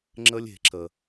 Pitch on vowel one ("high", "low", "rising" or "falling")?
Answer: high